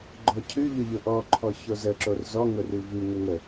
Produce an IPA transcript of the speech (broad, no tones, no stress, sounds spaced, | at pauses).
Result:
ɡ͡ǃ ɔ cʰ ʉ ʎ ʊ ʎ ʊ ʔ ɔ ǃʰ ɔ ç o z ə ǁ o r z ɔ ŋ ʊ r ʉ v ʉ ŋ ə ŋ ə